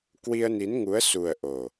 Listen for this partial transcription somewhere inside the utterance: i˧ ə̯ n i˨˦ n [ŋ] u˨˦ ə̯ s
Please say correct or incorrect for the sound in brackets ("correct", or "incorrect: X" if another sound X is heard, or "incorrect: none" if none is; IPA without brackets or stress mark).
correct